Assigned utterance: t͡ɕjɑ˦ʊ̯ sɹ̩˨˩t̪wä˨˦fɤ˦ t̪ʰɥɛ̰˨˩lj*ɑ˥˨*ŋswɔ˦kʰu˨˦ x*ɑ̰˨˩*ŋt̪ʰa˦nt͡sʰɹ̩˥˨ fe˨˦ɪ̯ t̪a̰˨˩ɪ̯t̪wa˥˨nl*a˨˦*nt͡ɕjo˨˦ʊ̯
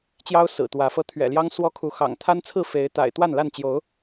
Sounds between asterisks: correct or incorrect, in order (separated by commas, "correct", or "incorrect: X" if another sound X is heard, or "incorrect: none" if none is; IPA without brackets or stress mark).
incorrect: ɑ˦, correct, incorrect: a˥˨